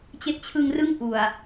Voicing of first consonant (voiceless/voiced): voiceless